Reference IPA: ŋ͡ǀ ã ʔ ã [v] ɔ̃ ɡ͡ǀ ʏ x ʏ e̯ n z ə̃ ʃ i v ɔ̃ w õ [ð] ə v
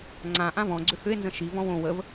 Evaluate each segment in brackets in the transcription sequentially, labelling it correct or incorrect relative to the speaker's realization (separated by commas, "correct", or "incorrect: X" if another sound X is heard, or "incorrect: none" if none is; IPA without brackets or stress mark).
correct, incorrect: w